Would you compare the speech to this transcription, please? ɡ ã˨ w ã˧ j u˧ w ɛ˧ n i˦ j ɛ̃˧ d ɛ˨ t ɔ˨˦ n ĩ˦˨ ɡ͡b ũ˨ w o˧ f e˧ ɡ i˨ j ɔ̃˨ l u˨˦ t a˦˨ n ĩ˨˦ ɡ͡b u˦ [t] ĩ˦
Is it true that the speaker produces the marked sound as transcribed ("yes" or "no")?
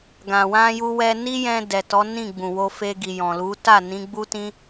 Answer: yes